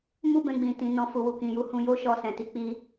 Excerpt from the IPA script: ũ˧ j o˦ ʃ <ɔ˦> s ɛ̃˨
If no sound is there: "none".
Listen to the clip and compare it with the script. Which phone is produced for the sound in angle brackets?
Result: ɔ˧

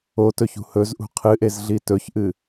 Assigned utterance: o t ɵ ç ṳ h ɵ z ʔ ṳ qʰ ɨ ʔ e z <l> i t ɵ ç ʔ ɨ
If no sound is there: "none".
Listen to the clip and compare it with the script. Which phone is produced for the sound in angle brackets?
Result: ɮ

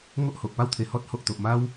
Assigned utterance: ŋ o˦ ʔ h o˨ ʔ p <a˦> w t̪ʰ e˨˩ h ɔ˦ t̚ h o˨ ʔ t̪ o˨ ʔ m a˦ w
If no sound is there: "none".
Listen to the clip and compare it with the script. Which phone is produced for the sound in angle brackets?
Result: a˦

